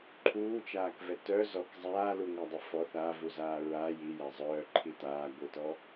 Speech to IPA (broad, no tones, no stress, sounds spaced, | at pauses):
ǃʰ uː t͡ʃ aː k v ɛ t œ z ɔ k zˤ aː l u ŋʷ a dˤ œ f ɔ θ a v u z aː ɹ a j i j a zˤ œː ǃʰ i t aː ɡʷ ɯ t ɔ